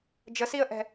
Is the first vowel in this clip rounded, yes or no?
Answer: no